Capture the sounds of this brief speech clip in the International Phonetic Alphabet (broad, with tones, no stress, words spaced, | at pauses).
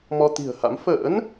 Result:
mɔ˧t̪i̤˨˩ə̯ha̰˧˥m fə̰ː˧˥n